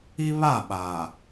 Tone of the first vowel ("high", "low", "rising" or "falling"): high